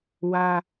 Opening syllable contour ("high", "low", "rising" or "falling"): high